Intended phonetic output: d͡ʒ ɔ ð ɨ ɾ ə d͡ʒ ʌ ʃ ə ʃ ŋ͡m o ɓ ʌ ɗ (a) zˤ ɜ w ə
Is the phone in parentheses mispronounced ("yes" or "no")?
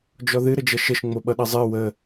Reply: yes